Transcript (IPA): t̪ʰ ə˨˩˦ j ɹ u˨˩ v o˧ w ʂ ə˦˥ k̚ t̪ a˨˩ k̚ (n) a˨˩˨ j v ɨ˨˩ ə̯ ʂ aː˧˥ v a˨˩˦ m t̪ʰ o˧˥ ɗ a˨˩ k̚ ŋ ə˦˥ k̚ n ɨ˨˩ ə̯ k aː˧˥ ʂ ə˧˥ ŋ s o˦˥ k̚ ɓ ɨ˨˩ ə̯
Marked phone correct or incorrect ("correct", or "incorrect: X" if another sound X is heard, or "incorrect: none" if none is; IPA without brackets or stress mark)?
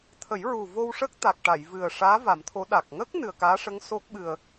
incorrect: ʈ